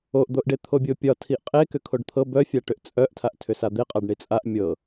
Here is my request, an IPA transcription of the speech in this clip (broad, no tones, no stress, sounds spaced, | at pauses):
o ʔ d̪ o ʔ ɖ e t̪ʰ o bʲ o pʲ ɒ tʰ i ʔ qʼ e k ʏ kʰ o ɖ t̪ʰ ɤ b œ fʲ a ʈ ʏ ʔ t͡sʼ œ ʔ tʰ a ʔ tʰ ʏ s a d̪ e qʼ a ɖ ɳ i t͡sʼ a ʔ mʲ ɤ